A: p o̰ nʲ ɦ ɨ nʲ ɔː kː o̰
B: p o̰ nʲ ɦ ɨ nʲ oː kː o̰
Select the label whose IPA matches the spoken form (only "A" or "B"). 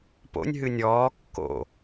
A